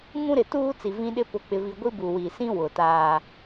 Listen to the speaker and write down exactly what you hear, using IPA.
ŋ ũ˦ ɾ ɪ˨ t uː˦ t͡s i˨ v ĩ˦ ɗ ɪ˦ p ʊ˨ k͡p ɪ˨ v i˨ ɡʷ i˦ b u˨ w i˨ s ĩ˦ w ʊ˨ t aː˦

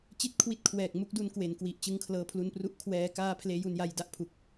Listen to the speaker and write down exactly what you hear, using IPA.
t͡ɕ i˥˩ t̚ kʰ w i˦˥ t̚ kʰ w ɛː˨˩ k̚ m u˥˩ k̚ d u˧ n k w e˩˦ n k w i˨˩ ʔ t͡ɕ ɯ˧ ŋ kʰ l ɤː˧ pʰ l u˧ n p r u˦˥ ʔ kʰ w ɛː˧ k aː˧ pʰ l eː˦˥ j u˧ n j a˧ j d a˦˥ ʔ pʰ u˨˩ k̚

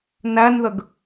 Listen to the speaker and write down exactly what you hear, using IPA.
n æ n ð ə ɡ

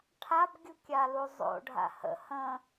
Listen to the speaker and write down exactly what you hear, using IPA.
ʈʰ a b ɡʲ u kʲ a l u zˤ o̰ ɖʱ a̰ h ə̰ h ə̃

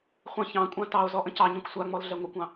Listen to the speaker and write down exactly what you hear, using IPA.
χʷ ɛ̃ ç ɑ̃ kʷʼ ã t ɑ o̯ z ɔ ʔ ə̃ c ɑ ɲ ɛ̃ kʷ sʷ a ŋ͡m ɔ l ɮ ɛ ŋʷ ə kʷ ɑ̃

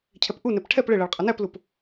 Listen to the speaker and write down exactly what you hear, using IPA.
cʰ ɛ p ʔ u n ɛ p ʈʰ ɛ p ɭ ɪ ɭ ɜ ɭ qʼ ʌ n æ p l u p

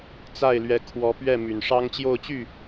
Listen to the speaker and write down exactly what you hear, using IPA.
t͡s a˥˩ ɪ̯ l ɥ ɛ˧˥ kʰ w ɔ˧˥ p ɥ ɛ˥˩ m y˨˩ n ʂ ɑ˥ ŋ t͡ɕ j o˥˧ ʊ̯ t͡ɕ y˥˩

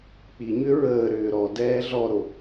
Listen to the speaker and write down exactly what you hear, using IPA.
k͡p i ɲ ʏ ɹ əː ɾ ʏː ɾ ɔ d ɛː ɮ ɔ ɾ o

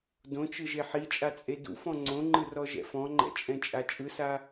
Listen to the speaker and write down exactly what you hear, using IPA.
d õ t͡ʃ ɯ ʒ e ħ i t͡ʃʼ a t͡sʼ e d ṵ f ɔ̃ ŋ͡ǀ õ ŋ͡ǃ ɯ r ɔ ʒ ɛ̰ f ɔ̃ ŋ͡ǃ ɛ̰ t͡ʃʼ ɛ̃ t͡ʃʼ a t͡ʃʼ ɯ s a

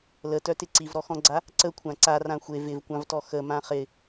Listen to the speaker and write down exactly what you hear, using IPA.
l ə t œ t ɪ ǀ i v ɾ ɔ x ɔ̃ ɡ͡ǀ a | ǀ ə kʷʰ ã ǀ a r ã xʷ e v ɪ v kʷ ã v t ɔ x ə m ã χ ɪ

